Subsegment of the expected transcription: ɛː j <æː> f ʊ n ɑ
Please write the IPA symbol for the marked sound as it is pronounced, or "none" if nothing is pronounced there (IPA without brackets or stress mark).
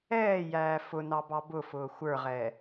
æː